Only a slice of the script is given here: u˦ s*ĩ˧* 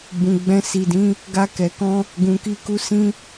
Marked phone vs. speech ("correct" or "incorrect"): correct